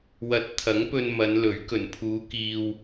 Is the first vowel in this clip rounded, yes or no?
no